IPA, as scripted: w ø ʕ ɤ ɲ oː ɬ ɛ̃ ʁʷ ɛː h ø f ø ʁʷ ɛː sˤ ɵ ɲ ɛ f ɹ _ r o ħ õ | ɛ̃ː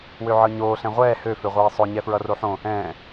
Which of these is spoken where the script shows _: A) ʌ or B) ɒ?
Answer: A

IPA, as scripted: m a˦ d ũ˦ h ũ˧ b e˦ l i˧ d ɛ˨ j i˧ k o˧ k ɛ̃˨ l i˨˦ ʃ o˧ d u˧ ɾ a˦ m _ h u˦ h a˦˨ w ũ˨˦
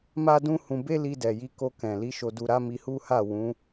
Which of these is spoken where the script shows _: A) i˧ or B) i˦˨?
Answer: A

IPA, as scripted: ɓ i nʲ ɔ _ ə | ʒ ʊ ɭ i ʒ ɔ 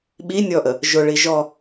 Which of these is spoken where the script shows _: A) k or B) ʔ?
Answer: B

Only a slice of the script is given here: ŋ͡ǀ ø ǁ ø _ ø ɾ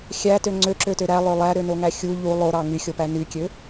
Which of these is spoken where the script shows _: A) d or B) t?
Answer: B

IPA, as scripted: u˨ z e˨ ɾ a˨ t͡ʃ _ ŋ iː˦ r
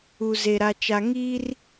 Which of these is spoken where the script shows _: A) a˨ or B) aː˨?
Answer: A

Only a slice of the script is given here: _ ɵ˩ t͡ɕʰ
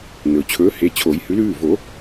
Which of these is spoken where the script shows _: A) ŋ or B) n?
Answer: B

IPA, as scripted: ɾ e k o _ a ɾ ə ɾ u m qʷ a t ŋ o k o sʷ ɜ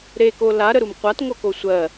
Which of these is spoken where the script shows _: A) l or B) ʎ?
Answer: A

